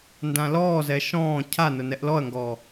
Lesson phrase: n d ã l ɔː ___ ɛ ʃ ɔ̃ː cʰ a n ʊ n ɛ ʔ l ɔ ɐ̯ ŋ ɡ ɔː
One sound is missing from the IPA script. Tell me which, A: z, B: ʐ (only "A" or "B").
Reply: A